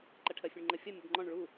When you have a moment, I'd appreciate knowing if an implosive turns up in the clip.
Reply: no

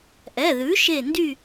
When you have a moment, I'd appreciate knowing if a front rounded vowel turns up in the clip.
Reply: yes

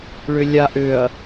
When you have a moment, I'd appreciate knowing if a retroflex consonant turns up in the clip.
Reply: yes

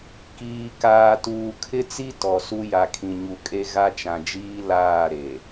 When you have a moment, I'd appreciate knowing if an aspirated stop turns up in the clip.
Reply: yes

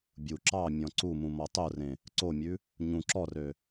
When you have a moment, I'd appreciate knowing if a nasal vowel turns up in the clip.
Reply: yes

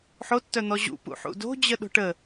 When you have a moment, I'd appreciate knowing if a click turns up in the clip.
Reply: no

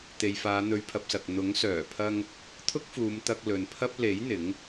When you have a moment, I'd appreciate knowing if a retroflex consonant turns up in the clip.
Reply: no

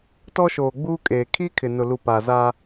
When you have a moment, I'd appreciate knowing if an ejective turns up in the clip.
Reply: yes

